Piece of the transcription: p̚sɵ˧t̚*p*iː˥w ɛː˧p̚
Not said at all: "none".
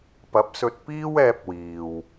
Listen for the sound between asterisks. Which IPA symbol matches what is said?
p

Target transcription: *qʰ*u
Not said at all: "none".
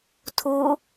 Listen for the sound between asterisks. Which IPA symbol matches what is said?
tʰ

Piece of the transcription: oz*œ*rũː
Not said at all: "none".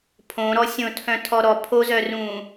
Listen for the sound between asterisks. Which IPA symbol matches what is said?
œ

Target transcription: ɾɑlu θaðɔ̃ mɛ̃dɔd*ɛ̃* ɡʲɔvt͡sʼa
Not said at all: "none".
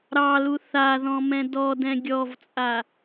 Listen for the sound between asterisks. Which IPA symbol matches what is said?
ɛ̃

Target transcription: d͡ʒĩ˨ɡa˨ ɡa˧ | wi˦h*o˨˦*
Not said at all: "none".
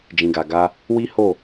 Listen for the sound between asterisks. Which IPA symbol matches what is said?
o˦˨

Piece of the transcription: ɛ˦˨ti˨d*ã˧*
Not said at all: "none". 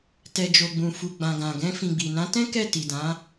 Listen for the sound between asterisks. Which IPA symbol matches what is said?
ã˨˦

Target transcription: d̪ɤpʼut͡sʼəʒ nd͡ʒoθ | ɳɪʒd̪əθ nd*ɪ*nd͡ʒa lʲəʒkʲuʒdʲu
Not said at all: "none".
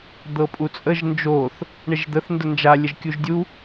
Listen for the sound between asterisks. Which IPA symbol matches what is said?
ə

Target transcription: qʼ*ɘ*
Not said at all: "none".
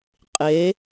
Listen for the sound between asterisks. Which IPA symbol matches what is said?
e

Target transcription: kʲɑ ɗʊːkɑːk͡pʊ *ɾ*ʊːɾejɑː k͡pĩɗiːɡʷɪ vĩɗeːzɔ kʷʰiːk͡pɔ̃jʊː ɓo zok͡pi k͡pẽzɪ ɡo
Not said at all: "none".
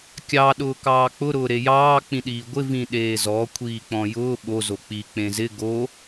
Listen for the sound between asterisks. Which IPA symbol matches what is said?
ɾ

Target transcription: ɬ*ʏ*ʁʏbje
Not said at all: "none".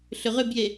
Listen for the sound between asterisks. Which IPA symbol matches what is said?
ʏ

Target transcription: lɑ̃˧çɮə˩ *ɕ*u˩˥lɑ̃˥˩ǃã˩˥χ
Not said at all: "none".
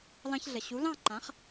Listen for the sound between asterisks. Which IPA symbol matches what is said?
ɕ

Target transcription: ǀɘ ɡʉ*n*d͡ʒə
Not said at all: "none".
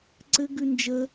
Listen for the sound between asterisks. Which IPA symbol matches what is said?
n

